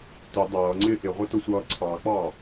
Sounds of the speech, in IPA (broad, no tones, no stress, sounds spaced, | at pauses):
t ʊ dˤ ʌː ŋ͡ǀ ɪː ʔ ɪ ʁʷ ɛ t ʊ sʷ ʌː ǀʰ ɑ k͡p ɑ